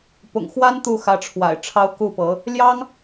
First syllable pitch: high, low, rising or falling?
low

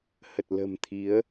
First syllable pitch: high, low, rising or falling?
low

